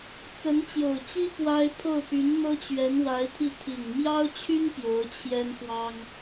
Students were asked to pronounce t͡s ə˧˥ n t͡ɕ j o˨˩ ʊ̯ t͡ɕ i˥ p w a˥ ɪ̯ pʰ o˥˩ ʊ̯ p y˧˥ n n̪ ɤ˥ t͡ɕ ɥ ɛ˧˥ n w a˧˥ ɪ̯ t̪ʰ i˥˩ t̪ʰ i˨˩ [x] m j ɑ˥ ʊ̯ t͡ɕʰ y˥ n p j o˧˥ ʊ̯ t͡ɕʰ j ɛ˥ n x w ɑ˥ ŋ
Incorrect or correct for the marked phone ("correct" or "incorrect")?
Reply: incorrect